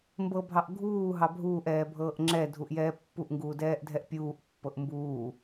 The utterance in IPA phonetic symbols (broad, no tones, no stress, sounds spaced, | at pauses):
m b ɤ bʱ ɑ ʔ ɡʱ uː ɦ ɑ bʱ uː ʔ ɛː bʱ ɤː ʔ ŋ͡ǁ ɛ dʱ u ʔ j ɛː pː u ʔ ŋ ɡ uː d ɛː ʔ dʱ ɛ ʔ pʲ uː ʔ pː ɤ ʔ m b uː